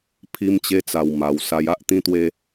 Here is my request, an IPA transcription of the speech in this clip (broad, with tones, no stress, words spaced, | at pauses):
pʰi˦mt͡ɕe˦t͡sa˧w ma˧w sa˧ja˦ʔ t̪ĩ˦t̪we˦